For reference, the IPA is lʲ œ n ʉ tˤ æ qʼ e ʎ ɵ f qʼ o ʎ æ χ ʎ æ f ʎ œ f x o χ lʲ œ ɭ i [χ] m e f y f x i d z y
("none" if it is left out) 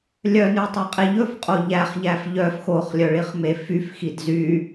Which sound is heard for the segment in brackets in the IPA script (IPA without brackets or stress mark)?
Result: χ